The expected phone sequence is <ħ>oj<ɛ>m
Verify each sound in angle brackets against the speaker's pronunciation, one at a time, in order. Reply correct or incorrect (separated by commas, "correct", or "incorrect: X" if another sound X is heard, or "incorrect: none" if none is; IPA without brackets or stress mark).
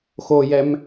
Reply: incorrect: x, correct